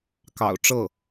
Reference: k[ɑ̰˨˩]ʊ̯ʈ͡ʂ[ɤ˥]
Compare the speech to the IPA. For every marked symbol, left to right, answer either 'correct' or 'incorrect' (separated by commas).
correct, incorrect